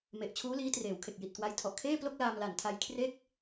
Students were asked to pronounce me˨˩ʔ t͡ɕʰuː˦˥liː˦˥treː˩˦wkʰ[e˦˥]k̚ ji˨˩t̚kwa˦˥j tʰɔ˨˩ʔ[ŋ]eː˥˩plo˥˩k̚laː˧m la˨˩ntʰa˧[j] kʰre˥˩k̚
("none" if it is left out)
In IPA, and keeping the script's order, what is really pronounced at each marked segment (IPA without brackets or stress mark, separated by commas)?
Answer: e˨˩, kʰ, j